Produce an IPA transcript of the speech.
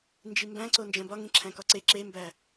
n d͡ʒ i m b æ̃ ǀ o n d͡ʒ æ̃ b ɒ ŋ ĩ ǁʰ æ̃ k ɒ ǀ e ǁ e m b æ

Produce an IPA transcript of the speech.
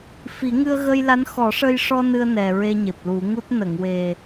f i˨˩˦ ŋ ɨ˧ ə̯ ɣ ə˧ j l a˧˥ n x ɔ˨˩˦ ʂ ə˧ j ʂ ɔ˧ n ɨ˧ ə̯ n ɛ˨˩ ɹ e˧ ɲ e˨˩ p̚ l u˨˩˦ ŋ u˦˥ t̚ n ə˨˩˨ ŋ w e˨˩

